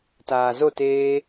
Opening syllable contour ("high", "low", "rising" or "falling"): low